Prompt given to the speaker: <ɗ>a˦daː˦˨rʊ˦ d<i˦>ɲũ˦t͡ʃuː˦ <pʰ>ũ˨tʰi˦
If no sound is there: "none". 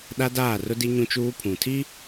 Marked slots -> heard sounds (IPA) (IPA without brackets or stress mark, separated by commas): ɗ, i˦, pʰ